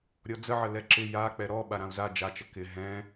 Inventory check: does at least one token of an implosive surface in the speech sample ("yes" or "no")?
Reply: yes